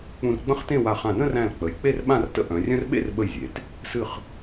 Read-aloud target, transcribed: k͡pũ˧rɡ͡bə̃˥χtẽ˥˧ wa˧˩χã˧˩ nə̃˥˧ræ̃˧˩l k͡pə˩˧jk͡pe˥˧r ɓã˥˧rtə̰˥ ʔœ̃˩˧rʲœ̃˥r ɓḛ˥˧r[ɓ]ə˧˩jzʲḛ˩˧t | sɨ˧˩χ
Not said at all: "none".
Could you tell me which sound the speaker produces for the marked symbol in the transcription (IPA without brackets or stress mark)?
ɓ